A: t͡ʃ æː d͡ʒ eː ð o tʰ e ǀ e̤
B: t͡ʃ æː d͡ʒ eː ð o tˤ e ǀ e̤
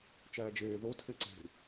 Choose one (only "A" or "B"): A